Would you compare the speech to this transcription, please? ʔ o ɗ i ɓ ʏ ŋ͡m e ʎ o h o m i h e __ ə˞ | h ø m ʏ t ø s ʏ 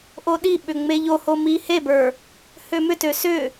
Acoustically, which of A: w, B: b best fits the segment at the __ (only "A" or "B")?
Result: B